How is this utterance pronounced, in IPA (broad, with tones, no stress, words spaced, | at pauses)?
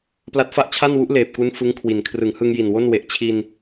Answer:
pla˦˥t̚fa˥˩ʔt͡ɕʰa˥˩nwu˦˥ʔ leː˨˩p̚ku˦˥n fɯ˦˥ŋkʰwi˨˩n kʰrɯ˩˦ŋhɯ˧ŋ ji˨˩nwo˥˩n we˨˩ʔt͡ɕʰi˧n